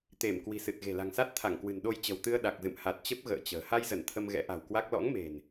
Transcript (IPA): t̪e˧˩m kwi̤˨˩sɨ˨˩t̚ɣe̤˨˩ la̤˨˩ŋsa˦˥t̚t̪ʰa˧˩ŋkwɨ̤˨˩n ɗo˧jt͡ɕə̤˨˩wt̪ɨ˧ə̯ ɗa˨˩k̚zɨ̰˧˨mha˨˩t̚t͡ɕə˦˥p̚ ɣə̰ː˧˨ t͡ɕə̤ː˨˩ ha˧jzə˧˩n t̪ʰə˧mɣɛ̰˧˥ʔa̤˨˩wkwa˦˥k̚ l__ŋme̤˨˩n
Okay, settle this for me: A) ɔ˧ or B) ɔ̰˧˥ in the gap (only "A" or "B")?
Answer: B